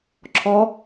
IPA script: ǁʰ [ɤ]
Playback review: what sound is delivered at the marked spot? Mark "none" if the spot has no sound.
ɔ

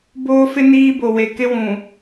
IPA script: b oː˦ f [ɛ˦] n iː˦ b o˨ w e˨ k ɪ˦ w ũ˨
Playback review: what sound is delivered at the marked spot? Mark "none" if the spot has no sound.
ɪ˦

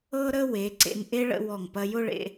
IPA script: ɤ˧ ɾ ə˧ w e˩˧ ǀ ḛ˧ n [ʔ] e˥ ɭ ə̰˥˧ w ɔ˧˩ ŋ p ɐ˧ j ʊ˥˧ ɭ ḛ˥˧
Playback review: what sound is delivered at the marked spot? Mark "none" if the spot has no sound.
ʔ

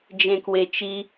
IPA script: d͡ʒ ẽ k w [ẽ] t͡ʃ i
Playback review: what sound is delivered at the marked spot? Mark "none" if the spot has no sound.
e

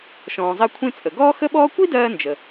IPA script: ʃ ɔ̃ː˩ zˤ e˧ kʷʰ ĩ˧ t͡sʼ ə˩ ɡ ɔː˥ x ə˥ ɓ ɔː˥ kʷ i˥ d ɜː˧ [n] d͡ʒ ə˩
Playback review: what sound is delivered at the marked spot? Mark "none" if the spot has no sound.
n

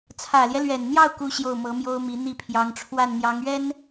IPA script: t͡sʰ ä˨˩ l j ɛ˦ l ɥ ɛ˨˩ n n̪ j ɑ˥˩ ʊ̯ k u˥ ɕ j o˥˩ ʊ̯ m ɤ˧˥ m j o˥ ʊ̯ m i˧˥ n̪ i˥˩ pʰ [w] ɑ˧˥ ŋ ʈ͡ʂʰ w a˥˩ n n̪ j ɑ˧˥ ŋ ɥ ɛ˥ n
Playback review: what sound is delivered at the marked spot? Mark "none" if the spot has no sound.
j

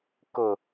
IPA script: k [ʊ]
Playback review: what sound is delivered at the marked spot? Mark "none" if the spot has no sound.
ʊ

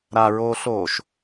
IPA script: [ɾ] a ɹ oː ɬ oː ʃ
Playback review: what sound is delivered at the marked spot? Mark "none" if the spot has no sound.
ɾ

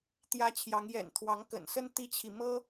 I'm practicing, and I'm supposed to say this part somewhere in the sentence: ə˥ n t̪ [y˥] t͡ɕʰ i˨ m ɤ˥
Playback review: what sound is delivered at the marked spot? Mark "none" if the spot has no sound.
i˥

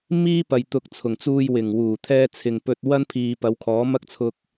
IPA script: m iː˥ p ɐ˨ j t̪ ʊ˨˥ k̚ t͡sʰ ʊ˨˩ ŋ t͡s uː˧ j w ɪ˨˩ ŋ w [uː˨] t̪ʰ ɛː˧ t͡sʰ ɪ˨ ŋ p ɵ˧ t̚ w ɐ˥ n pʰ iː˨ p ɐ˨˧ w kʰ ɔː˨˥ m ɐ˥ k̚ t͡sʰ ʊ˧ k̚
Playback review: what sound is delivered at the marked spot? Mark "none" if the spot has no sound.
uː˨˩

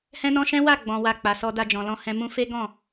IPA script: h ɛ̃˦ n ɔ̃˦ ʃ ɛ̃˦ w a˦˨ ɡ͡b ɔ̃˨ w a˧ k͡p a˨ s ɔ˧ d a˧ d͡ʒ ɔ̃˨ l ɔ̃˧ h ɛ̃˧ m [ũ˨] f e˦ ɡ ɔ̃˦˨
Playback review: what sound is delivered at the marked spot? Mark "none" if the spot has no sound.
ũ˧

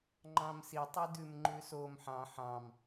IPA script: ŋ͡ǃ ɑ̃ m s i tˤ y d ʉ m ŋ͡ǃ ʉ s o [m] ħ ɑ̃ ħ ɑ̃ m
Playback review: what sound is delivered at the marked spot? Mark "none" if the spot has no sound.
m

